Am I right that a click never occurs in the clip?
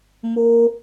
yes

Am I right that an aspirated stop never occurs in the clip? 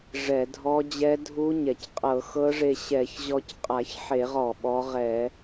yes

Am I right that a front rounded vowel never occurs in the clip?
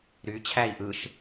no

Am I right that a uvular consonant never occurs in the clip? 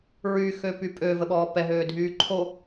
yes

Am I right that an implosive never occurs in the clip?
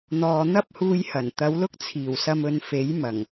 yes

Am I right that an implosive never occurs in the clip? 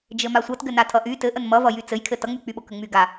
no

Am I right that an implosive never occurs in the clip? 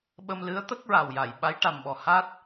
no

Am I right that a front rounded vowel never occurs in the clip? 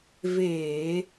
yes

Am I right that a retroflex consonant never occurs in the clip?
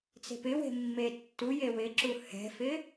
yes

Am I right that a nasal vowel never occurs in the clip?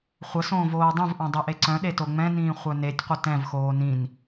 no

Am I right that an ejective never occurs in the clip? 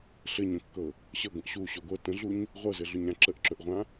yes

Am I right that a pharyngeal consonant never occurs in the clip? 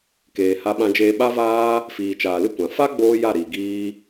yes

